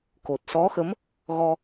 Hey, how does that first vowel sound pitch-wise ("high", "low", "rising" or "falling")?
low